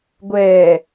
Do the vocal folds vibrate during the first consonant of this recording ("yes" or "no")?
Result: yes